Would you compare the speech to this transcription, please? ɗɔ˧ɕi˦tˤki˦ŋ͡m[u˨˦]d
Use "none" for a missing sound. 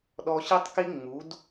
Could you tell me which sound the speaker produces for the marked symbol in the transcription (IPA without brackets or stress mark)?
u˨˦